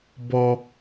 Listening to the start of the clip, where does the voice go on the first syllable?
high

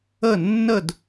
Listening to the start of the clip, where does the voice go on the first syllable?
falling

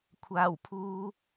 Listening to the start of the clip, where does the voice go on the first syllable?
low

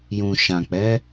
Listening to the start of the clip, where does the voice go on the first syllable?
low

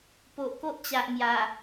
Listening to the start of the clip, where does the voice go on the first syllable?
low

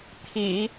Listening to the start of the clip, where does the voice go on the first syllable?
low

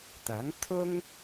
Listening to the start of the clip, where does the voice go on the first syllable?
rising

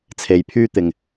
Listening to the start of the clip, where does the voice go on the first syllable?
low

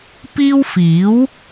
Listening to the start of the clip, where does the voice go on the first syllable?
high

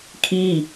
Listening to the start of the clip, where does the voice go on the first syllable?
falling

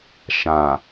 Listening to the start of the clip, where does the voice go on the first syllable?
low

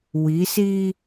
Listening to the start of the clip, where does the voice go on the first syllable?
rising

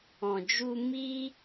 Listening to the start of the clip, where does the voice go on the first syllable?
low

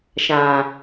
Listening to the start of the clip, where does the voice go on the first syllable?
low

